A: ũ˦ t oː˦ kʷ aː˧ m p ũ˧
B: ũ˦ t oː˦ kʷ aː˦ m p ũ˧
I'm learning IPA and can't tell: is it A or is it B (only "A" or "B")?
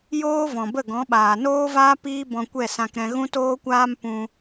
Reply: B